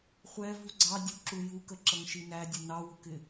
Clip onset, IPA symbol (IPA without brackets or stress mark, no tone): χʷ